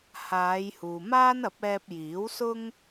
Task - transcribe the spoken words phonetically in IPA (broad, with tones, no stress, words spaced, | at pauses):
haː˨˧jhuː˨maː˥nɐ˨˥p̚ ɛː˧p̚jiː˨˥wsʊ˥ŋ